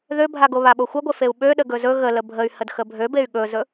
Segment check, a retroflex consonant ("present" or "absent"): absent